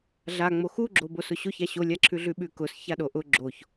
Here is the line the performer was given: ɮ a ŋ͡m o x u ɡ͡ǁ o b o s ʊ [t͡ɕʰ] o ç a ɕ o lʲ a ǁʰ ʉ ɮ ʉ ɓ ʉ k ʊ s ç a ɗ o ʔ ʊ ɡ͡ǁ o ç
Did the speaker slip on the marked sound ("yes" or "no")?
yes